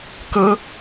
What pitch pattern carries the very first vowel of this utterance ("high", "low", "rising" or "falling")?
high